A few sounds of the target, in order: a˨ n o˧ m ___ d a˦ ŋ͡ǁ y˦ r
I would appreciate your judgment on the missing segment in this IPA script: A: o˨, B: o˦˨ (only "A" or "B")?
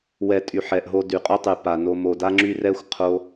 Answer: A